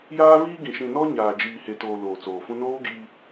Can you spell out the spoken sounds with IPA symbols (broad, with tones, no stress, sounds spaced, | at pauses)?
j aː˦ v iː˦ ɡ ĩ˨ ʃ ĩ˨ n ɔ˦ ɲ aː˨ d͡ʒ iː˨ h e˨ t oː˨ l oː˨ t͡s oː˨ f ũ˦ n oː˦ ɡ iː˦